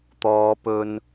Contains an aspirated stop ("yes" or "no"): no